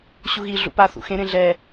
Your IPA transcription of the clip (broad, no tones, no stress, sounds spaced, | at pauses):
ɕ u ɣ i ɮ ṵ p a θ ṵ x ẽ ɾ ẽ ɮ ɛ